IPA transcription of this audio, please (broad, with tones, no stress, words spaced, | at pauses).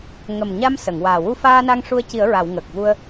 ŋə˨˩mɲa˧m sə˨˩˨ŋwaː˨˩ wu˧faː˧na˧ŋ ʂu˧ə̯ci˨˩˦ə̯ɹa˨˩˨w ŋə˨˩k̚vu˧ə̯